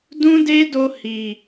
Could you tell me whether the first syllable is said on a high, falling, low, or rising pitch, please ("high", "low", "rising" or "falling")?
high